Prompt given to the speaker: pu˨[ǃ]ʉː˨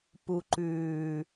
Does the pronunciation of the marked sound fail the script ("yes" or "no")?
no